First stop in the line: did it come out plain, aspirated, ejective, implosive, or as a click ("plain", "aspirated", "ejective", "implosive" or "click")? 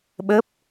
implosive